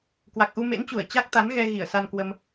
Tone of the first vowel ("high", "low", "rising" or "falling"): low